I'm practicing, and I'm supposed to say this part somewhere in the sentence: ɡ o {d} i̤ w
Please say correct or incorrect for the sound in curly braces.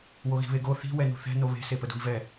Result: incorrect